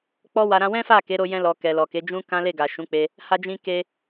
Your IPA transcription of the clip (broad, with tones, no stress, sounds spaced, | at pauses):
k͡p ɔ˦ w a˧ ɾ ã˧ w ɛ̃˦ f a˦˨ k e˨˦ ɾ o˧ j ɛ̃˧ l ɔ˨ k ɛ˨ l ɔ˨ k e˨˦ d͡ʒ ũ˦ k ã˦ l e˦˨ ɡ a˨ ʃ ũ˨˦ k͡p e˧ | h a˧ d͡ʒ ĩ˧ k e˧